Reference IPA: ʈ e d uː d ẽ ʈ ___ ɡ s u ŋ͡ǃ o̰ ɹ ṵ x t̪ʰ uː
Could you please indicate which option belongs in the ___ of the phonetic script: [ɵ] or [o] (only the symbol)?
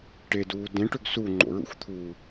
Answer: ɵ